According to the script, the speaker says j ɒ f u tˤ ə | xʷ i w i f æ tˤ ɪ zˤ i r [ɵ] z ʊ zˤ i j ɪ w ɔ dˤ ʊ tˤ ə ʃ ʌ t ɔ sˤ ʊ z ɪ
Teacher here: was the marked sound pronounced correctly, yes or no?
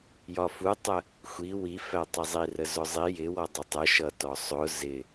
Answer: no